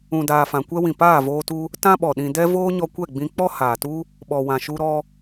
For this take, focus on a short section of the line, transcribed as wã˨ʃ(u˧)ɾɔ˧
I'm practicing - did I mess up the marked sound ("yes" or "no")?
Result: no